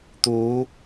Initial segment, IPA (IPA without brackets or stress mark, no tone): t̪